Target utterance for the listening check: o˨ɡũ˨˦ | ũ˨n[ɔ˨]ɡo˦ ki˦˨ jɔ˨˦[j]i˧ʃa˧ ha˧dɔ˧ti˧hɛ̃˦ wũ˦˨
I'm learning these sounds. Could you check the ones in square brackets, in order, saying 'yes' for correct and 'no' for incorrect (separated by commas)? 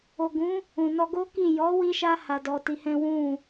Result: no, no